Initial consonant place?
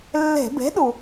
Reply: alveolar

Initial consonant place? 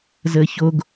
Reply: alveolar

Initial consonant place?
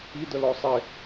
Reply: alveolar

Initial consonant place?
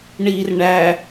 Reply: retroflex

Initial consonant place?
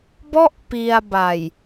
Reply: labial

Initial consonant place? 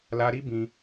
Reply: alveolar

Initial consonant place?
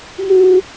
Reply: labial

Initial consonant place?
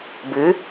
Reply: labial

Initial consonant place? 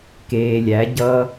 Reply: velar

